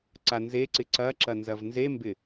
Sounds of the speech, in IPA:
ǀ a n z e ǀ ɪ ǀ ɐ ǁ ɐ n z ɐ v n z e m b ɪ

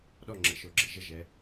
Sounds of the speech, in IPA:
ɗ ɔ˥˨ ŋ͡ǁ ə̰˩˧˩ ʃ o˧˩˧ ɡ͡ǁ ə̰˩˧˩ ʒ ə˥˨ ʒ ɛ˩˧

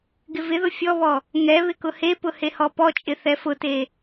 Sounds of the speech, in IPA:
ɡ ɪ v ɪ ð ʊ fʲ ɔ β ɔ | ŋ ɛ β ɪ k ʊ h e p ʊ h e h ɔ p ɔ t͡ʃʼ ɪ θ ɛ f ʊ t e

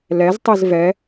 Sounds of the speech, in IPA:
l ɛ z tˤ i z v ɛ

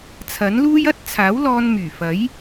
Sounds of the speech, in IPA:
t͡sʰ ɐ˨˥ n l uː˥ j ɐ˥ t̚ t͡sʰ aː˨˥ w l ɔː˧ n m yː˨˩ f ɐ˨˥ j

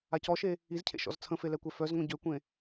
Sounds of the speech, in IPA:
a c ɔ ʃ e | i z cʰ ḛ ʃ ɔ̰ z t͡sʰ ə̃ f e l ɛ kʷ ɛ f œ z ŋʷ ĩ ɟ ø kʷ ẽ

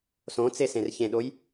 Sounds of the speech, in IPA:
s õ t͡s e s ẽ r ç ẽ ɗ o j

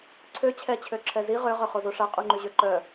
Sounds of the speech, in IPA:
ǀʰ ø t͡ɕʰ ɛ t͡ɕʰ ø ǁʰ ɛ z i ʁ ø ʁ œ χ o z o ʂ a qʼ u ŋ͡ǃ y ʑ ø ǃ œ

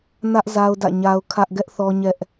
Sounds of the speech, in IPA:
n ä˦ ʔ z a˦ ʊ̯ d ä̰˦˨ ɲ a˦ ʊ̯ kʰ ä˦ ʔ ɡ ɛ˦ ʔ θ ɔ˦ ɲ ɛ˦ ʔ

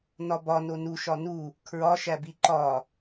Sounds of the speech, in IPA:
n ɒ b ɒ n o n u ʃ ɒ n u | kʰ ɹ ɒ ʃ æ b i ǃ ɒ

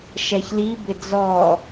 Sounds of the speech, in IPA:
ʃ ɛ ç l i b ɪ d͡z ɔ

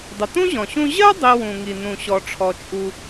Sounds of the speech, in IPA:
dˤ ɪ˩ t ũ˥ ʑ ɔ̃˩ ɕ ũ˧ ʑ ɜ˥ dˤ i˧ w ũ˩ ŋ i˩ n ũ˩ ɕ ɔ˩ ʈ͡ʂʰ ɔ˩ t͡ʃʼ u˩

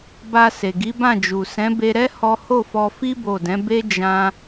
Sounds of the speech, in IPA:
b a˧ s e˨ ɡ i˨˦ b ã˦˨ d͡ʒ u˨ s ɛ̃˨˦ b e˧ ɾ ɛ˦ h ɔ˦ h o˦˨ f ɔ˧ f i˦ b o˦˨ d ɛ̃˨˦ b e˦ d͡ʒ ã˦

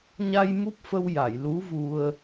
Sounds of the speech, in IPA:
ɲ a˧ j m u˦˥ p̚ f ə˧ w j a˨˩˨ j l u˧˥ v u˧ ə̯

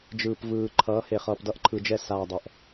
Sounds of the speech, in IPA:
d͡ʒ ɯː˨ p v ɯː˨ ǃʰ ʌː˨˦ h e˨ χ ʌː˨ p d ʌ˦ ʔ ǃʰ ɯ˨ d͡ʒ ɛ˦˨ s aː˨ dˤ ɛ˨ ʔ

